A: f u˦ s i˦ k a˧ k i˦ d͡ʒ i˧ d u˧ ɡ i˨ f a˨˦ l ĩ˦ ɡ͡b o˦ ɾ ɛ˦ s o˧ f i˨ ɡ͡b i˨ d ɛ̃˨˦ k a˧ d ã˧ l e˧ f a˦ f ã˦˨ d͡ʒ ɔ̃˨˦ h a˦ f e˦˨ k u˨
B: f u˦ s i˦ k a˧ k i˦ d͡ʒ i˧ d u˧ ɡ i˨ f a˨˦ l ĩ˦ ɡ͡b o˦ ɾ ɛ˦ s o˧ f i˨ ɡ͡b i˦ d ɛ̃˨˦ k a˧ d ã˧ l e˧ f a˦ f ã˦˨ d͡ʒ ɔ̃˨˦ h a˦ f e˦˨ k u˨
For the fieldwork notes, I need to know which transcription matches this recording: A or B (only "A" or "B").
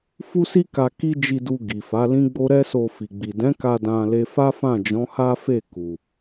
A